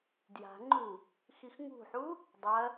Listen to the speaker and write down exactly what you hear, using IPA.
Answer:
d j a̤ ŋ͡ǃ u | x i x ŋ ṳ ħ u | dˤ ɐ

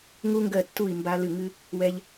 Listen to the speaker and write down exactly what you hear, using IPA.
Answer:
ŋ u˧ ŋ ɡ ɜ˧˩ tː u˧˩ i̯ m b a˧ l ɨ˧˩ ŋ ɨ˧ | w ɛ˧ ʎ

